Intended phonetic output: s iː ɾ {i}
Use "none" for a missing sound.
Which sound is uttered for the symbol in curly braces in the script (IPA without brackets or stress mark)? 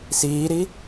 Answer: i